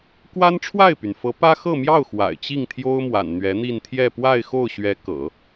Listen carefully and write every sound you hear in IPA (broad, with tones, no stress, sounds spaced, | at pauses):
k w a˥ n ʈ͡ʂʰ w a˥˩ ɪ̯ p y˩ n f ɤ˧˥ p ä˥ x ɤ˥˧ m j ɑ˥˩ ʊ̯ x w a̰˨˩ ɪ̯ t͡ɕ i˥˩ ŋ t̪ʰ j o˥ ʊ̯ m w a̰˨˩ n n̪ ɥ ɛ˧˥ n̪ i˥˧ n t̪ʰ j ɛ˥˧ p w a˥˧ ɪ̯ x o˥˩ ʊ̯ ɕ ɥ ɛ˧˥ k ɤ̰˨˩˦